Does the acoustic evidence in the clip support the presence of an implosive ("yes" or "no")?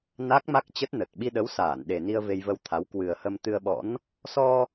yes